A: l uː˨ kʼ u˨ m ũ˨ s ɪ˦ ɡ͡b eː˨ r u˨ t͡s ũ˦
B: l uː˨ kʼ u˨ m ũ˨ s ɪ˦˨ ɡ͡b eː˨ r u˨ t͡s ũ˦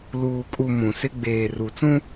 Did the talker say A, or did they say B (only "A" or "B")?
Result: A